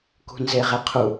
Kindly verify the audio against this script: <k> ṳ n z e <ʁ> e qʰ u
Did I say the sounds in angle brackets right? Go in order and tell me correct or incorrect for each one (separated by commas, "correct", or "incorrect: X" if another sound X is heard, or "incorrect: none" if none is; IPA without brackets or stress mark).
correct, correct